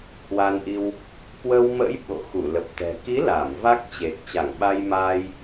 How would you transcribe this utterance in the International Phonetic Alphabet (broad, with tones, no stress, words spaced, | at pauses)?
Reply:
hwa˧nʔi˧w | kwə˧wmə̰˧˥j ɓo̰˧˨xu˧˩lə˨˩p̚t̪ɛ̤˨˩ ki˨˦ la˧˩m va˦˥k̚t͡ɕe˨˩k̚ t͡ɕa˧˩ŋɓa˧jmaː˧j